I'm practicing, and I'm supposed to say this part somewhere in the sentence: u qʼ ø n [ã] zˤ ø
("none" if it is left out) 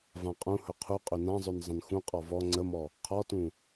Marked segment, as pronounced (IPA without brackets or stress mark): ã